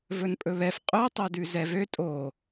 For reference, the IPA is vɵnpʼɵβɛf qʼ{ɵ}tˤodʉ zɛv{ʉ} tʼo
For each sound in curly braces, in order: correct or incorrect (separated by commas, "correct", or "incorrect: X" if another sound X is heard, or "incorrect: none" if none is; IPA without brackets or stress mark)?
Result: correct, incorrect: ø